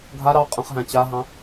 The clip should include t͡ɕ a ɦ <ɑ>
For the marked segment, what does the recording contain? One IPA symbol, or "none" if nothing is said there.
ɑ̃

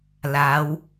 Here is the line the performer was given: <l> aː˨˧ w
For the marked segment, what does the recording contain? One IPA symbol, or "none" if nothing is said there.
l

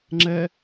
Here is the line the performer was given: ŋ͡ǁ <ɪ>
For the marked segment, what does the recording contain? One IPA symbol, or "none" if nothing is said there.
ɛ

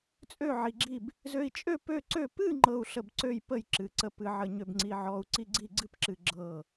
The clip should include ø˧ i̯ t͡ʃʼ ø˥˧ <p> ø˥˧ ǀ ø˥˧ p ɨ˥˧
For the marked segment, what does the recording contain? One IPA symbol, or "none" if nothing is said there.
p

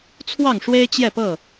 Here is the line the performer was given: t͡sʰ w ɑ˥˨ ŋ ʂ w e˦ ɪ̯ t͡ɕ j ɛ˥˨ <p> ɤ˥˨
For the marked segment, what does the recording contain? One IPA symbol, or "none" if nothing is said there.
p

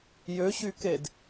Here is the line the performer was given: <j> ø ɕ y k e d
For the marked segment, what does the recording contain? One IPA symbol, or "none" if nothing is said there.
j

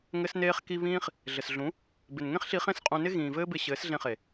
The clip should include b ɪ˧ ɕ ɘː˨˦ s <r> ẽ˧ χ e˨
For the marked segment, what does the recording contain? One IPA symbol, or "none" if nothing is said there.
ɮ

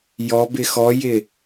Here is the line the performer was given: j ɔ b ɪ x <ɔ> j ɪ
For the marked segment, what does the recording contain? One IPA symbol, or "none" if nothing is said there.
ɔ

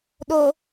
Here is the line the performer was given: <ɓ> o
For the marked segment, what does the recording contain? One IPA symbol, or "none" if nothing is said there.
ɗ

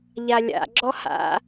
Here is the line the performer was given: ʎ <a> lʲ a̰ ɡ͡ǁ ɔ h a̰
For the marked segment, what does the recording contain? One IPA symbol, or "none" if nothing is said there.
a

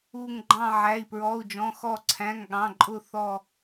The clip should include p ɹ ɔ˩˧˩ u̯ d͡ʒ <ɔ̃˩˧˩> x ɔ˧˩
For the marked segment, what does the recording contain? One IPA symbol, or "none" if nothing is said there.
ɔ̃˩˧˩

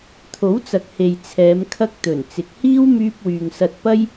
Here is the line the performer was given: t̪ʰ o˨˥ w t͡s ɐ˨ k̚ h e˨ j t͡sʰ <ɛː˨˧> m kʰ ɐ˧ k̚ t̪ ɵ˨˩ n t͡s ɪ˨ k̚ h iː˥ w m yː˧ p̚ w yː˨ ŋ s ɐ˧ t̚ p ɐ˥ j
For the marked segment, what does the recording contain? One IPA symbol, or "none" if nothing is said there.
ɛː˨˧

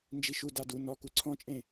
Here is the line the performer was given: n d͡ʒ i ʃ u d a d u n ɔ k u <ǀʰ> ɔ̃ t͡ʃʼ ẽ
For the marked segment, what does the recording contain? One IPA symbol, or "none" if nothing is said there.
ǀʰ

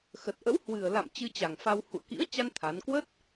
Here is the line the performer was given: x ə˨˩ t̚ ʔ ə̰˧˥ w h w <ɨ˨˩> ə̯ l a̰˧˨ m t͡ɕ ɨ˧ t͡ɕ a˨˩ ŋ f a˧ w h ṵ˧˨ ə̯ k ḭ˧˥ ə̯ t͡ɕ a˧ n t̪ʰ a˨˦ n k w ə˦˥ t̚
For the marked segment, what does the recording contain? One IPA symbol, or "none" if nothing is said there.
ɨ˨˩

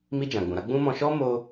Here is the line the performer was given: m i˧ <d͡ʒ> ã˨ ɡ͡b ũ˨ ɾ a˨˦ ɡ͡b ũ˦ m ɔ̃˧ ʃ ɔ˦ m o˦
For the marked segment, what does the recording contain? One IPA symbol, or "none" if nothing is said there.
d͡ʒ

